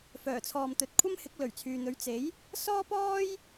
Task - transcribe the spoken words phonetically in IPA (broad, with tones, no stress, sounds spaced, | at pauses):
f œː˨˩ t͡sʰ ɔː˨ m t̪ ɵ˨ t̚ kʷʰ ɐ˥ m h ɪ˨˥ k̚ l ɵ˨˩ ɥ t͡sʰ yː˨ n̪ ɵ˨˥ ɥ t͡s e˨˥ j | s ɔː˥ p ɔː˥ j